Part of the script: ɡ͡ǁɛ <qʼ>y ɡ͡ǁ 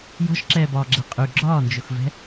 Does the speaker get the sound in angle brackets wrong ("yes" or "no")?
no